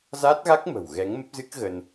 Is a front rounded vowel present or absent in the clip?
absent